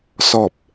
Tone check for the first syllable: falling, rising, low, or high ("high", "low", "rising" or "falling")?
low